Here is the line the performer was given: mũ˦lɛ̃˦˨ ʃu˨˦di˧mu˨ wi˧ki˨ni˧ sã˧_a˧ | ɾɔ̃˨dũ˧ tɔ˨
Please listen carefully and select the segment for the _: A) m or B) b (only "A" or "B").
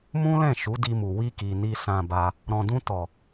B